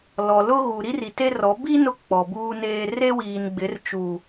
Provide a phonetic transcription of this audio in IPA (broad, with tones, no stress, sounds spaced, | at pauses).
l ɔ˨ l ʊ˦ ɣ u˨ ɾ i˦ r i˨ t e˦ r ɔ˨˦ b i˦ n ʊ˦ k͡p ɔ˨ b uː˦ n eː˦ r e˦ w iː˨ n ɡ͡b ɪ˨˦ r t͡ʃ u˨